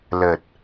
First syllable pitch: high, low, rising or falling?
low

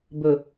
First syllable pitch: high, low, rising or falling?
low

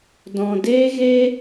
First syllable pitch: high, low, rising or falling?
low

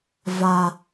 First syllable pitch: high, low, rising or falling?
low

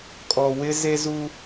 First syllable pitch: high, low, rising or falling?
low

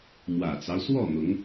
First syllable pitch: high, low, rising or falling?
low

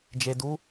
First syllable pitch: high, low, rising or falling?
low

